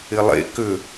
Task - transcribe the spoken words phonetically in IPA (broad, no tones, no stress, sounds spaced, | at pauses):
ɪ lˠ ḛ k ʏ